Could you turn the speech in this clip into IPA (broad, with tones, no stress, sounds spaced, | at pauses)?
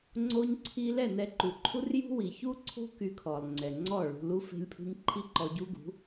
ŋ͡ǀ o˧ ɲ ǀʰ i˧ l ɛ˥˩ n ɛ˧ ǃ u˩ ǃʰ u˥ r j ṳ˥ w i˩ ç u˥ ǀʰ o̤˥ k y˧ kʰ ɔ˩ lˠ ŋ͡ǀ ɛ˩ ŋ͡ǀ ɔ˥˩ ɭ ṳ˧ l u˥ f e̤˥ lʲ pʰ ṳ˥ ɲ ǃʰ i˥ ǃ ɔ˧ ɟ u˥ ɡ ṳ˩˥